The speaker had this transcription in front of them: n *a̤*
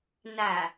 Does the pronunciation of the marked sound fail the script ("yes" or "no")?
yes